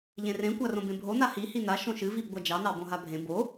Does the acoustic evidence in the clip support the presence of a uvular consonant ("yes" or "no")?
no